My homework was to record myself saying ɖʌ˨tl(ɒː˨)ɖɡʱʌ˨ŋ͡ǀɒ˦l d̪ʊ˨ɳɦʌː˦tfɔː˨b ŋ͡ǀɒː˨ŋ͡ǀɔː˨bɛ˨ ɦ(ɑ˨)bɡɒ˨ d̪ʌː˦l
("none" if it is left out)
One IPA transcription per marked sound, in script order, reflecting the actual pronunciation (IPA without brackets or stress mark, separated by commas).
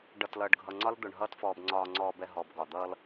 ʌː˨, ɔ˨